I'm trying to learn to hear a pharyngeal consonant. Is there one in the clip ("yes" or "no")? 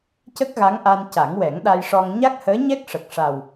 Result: no